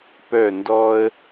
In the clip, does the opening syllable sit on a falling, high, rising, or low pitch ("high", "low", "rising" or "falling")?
falling